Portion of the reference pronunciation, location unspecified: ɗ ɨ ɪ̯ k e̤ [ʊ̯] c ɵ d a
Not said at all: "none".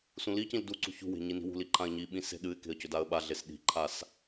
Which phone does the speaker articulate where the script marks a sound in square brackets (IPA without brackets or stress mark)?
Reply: ə̯